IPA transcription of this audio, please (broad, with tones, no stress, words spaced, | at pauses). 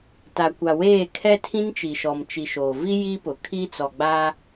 ta˨kʷa˨weː˦˨ kʰɛ˦tʰĩ˦nt͡ʃi˨ ʃɔ˨m t͡ʃi˨ʃoː˨vi˦ ji˦pʊ˨ kʰi˦t͡sɔ˨ɡ͡baː˦